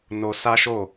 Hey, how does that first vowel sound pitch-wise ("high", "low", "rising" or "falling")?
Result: high